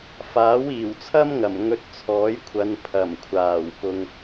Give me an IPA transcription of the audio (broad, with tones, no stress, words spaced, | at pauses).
faː˨˥wiː˨˩wt͡sʰɐ˥mŋɐ˨˩m ŋɵ˧t̚t͡sʰɔː˨˥jkʷʰɐ˨˧n pʰɐ˨˩mkʷʰaː˨˩wpʊ˨ŋ